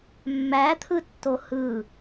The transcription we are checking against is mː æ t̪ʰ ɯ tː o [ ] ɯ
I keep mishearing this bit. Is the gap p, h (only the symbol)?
h